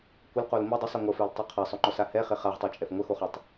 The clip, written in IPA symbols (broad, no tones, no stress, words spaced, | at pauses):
kʷɘlqol mi dˤəsˤi ŋʷəfɛltˤɪ qʰasˤoŋ͡ǃɔsa hɛχɪ χaʁtˤit͡ʃʼɛf ŋʷəxoχɒtˤ